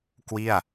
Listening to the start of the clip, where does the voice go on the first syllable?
falling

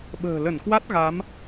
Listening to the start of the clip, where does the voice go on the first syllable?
low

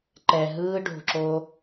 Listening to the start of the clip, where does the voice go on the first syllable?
low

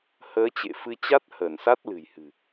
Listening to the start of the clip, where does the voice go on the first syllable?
rising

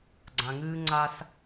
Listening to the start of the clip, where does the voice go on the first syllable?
low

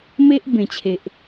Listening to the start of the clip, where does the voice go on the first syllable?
high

